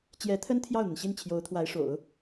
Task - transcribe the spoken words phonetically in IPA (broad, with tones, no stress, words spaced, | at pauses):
t͡ɕjɛ˧˥t̪ʰə˥n t̪ʰjɑ˥˩ʊ̯n̪ə˩nɕi˥˩n t͡ɕʰjo˧˥ʊ̯t̪ʰwa˧˥ɪ̯ʂo̰˨˩˦ʊ̯